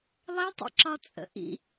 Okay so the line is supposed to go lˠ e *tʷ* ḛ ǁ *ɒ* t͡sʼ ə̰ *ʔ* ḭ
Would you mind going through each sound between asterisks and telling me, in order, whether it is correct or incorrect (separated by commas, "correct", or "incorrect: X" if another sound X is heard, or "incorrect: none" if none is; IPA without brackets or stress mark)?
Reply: incorrect: tˤ, correct, correct